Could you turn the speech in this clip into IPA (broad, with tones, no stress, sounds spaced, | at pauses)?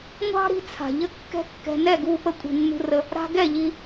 ŋʷ ɑ̤˦ ɾ i̤˧ t͡sʰ a̤˨ ʎ ə˦ kː ɛ̤˦ kː ɛ̤˧ n ɛ˦˨ ɡ u˧ p ə˧ kʷʼ i̤˨ nː ṳ˧ r ə˧ | ɾ a̤˧ ɡ ɛ˦˨ ʎ i˧